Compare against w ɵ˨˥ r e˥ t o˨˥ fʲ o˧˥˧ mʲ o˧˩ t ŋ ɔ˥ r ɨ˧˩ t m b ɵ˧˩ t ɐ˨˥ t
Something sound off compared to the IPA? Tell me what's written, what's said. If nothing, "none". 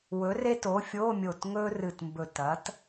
ɔ˥ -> ɵ˥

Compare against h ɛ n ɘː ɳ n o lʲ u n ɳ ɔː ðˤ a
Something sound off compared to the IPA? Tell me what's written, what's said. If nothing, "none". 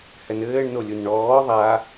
none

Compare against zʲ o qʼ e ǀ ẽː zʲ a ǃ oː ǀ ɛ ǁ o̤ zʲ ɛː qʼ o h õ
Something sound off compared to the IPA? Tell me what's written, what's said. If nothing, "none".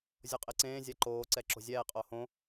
none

